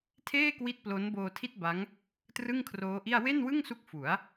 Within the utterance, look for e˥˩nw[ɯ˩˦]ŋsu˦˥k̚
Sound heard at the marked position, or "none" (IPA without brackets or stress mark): ɯ˥˩